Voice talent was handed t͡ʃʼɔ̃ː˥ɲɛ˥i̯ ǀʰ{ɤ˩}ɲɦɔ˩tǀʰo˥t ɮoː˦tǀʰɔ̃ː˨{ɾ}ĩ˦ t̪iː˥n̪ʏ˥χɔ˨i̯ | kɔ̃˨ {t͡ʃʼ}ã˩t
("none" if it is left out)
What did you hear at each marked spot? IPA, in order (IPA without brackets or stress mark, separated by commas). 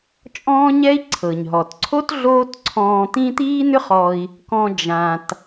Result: ɤ˩, t̪, d͡ʒ